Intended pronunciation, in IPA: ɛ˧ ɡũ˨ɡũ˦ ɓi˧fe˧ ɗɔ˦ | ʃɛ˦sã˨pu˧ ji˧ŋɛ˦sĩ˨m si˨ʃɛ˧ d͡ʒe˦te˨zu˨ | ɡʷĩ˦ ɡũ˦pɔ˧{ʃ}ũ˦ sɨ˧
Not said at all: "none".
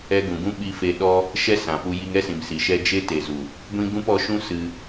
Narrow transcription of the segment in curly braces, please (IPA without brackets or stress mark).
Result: ʃ